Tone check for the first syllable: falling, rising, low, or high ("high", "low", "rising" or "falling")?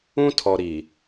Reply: high